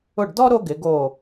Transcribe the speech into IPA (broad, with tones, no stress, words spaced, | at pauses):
ʊ˦˨ɖdɔ˥ ɾo˥ɡɪ˨˦ ɡo˦˨